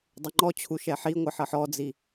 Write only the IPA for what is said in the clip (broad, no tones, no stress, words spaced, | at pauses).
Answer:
dˤəŋ͡ǃɔt͡ɕʰu ʃɛħiŋʷʌ ħʌħɔd͡zi